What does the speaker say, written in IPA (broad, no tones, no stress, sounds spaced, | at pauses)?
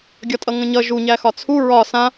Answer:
ɡʲ ɒ tʼ ʌ ŋ ə̃ ɲ ʌ ʒ u ɲ æ x ɒ t͡sʰ u ɹ ɒ s ã